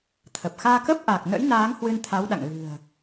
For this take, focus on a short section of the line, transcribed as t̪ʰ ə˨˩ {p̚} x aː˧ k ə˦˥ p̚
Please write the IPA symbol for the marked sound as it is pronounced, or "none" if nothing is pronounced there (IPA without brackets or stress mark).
p̚